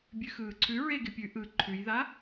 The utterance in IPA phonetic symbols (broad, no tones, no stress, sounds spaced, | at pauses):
bʲ ʉ x ɯː ǀʰ ʉ ɹ e ɡ ɪ pʲ ʉ ʔ ɯ ǃʰ ʉ j ð a